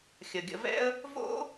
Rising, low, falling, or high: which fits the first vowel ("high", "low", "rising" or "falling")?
low